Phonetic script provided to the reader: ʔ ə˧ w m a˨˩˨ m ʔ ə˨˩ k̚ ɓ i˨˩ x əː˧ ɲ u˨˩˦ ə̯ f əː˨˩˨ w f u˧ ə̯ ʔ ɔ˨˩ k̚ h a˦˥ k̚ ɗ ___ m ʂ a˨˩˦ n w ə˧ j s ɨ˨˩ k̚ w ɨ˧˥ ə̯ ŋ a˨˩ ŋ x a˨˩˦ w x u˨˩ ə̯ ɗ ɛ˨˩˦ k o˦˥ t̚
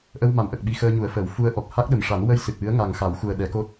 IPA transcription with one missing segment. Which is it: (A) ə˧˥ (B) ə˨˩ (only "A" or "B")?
B